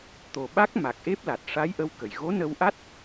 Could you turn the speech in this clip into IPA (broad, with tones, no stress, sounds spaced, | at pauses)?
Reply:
t̪ o˨˩ ɓ a˦˥ k̚ m a˨˩ k̚ ʔ e˦˥ p̚ l a˨˩ t̚ ʂ a˧˥ j ʔ ə˧ w k ə˨˩˨ j ɣ o˧˥ n ə˧ w ʔ a˦˥ t̚